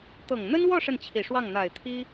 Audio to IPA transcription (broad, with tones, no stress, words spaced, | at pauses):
t̪ɤ˨˩ŋn̪ə˥nwɔ˥˧ ʂə˥˩nt͡ɕʰi˨˩ʂwɑ˥˩ŋ n̪a˨˩ɪ̯t̪ʰi˥